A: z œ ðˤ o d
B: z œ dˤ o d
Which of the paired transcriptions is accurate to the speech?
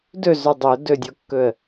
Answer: B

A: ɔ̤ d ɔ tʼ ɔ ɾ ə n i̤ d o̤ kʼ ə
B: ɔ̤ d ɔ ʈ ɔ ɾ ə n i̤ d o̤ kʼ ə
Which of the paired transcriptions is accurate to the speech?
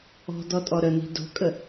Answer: A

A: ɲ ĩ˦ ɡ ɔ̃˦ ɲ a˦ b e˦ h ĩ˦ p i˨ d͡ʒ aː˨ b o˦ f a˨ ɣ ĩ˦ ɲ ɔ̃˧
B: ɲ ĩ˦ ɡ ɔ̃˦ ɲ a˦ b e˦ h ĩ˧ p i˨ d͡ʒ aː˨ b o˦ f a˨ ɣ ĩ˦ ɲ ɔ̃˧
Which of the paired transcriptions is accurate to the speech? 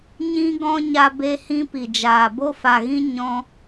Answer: A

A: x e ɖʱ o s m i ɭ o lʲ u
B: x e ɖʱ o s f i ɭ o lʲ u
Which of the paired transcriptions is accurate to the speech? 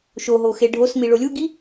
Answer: A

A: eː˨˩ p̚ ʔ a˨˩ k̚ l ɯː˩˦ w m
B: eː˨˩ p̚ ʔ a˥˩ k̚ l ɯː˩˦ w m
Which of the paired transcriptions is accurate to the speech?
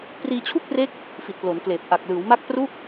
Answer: A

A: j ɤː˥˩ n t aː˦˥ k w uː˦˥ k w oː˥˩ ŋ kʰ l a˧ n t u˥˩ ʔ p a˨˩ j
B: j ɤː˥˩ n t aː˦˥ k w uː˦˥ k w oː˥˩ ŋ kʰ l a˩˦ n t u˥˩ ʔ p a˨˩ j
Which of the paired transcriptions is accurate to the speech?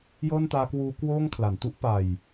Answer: B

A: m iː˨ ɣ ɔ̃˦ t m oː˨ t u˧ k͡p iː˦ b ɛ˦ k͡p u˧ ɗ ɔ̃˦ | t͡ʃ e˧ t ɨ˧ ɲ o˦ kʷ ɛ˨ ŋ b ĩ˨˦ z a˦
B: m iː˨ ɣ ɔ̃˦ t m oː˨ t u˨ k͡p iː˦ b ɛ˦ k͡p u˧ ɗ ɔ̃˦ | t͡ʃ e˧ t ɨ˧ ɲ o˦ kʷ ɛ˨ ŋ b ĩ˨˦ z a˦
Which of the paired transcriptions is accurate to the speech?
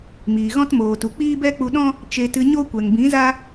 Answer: B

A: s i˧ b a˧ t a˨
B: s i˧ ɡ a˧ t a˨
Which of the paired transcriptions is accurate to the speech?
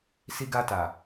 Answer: B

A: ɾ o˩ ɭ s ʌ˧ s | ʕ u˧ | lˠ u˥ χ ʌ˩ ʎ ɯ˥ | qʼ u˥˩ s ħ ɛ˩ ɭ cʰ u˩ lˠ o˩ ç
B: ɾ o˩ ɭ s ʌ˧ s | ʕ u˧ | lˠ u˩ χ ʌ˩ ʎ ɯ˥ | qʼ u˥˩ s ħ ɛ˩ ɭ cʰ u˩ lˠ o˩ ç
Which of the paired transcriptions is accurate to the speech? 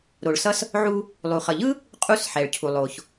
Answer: B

